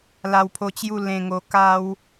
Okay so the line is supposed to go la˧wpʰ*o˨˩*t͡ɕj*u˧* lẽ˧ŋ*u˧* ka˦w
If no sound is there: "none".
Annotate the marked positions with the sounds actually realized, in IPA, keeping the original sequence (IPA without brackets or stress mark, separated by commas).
o˧, u˥˧, o˧